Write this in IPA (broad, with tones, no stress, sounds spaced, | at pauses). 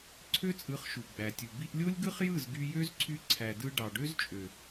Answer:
ǀʰ ø˦ t͡sʼ ɯ˨˦ χ ʃ u˨ ɡ͡b æ˨ tʲ u˨ b i˧ ʔ lʲ o˦ lʲ ɡ ɯ˦ χ j ɯ˦˨ z ɡ y˧ j ø˦ z ǀʰ y˧ ǀʰ æ˨ d ɯ˧ ɖ ɑ˨ ɖ ø˦ z t͡ʃʼ ø˨